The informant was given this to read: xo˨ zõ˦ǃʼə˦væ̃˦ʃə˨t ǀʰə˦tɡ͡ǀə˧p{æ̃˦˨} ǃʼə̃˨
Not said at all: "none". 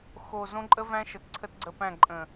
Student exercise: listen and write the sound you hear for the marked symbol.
æ̃˦˨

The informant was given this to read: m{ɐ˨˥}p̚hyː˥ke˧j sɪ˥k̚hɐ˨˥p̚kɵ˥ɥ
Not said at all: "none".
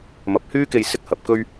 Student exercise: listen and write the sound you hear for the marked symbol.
ɐ˨˥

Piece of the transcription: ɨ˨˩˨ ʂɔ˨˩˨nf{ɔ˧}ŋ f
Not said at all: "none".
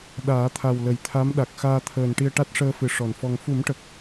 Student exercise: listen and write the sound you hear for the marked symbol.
ɔ˧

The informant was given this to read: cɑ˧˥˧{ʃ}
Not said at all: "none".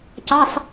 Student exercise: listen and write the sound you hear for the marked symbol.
s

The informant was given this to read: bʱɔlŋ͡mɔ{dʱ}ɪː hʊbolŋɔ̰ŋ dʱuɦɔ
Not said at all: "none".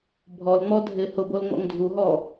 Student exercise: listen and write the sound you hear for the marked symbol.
dʱ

